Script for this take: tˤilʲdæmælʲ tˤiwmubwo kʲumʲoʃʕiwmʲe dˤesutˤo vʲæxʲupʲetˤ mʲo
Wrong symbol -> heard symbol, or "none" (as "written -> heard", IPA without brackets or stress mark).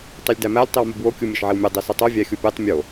none